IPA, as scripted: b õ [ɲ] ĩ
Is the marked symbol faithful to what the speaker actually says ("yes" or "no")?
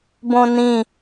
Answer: no